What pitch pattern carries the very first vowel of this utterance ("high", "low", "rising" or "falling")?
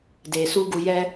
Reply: low